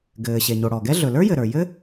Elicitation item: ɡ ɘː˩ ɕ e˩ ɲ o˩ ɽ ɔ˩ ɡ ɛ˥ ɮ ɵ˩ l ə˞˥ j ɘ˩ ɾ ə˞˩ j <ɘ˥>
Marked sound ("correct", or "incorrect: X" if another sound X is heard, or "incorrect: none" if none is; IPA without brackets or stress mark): correct